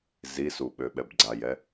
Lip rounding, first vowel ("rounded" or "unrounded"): unrounded